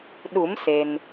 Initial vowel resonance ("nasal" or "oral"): oral